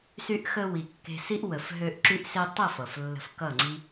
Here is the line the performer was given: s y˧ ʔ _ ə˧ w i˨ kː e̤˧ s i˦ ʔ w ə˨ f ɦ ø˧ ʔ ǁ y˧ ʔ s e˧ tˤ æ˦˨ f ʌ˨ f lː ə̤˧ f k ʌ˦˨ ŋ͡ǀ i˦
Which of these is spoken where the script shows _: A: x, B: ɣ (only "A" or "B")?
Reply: A